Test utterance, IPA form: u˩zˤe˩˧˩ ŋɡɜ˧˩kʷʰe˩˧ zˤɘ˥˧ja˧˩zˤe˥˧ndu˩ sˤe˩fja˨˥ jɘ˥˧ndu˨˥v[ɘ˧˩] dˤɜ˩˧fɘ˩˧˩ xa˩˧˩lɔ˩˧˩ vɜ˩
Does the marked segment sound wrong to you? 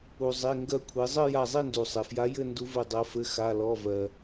no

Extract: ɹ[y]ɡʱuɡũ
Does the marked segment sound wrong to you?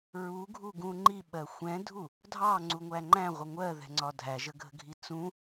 yes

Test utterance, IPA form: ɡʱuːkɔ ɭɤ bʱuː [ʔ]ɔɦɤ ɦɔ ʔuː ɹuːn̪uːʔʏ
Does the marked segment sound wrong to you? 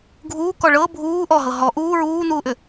no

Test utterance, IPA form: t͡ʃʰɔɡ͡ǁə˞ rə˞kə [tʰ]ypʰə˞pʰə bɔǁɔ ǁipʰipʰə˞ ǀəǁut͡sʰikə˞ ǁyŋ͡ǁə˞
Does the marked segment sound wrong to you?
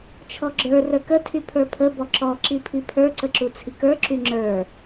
no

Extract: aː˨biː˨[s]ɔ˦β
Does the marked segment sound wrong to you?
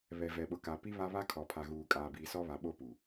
no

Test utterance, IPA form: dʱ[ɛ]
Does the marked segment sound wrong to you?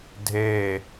yes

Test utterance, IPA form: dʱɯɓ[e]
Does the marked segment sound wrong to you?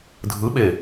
no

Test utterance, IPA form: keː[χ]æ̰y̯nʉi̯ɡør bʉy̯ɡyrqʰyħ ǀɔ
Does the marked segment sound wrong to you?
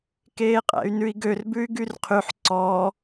yes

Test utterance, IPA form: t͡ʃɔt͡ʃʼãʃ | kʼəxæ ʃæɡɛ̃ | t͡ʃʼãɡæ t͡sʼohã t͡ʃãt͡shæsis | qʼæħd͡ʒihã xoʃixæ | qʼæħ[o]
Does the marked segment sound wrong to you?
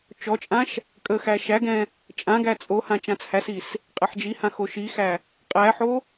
no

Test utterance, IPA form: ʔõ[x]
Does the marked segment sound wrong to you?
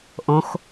no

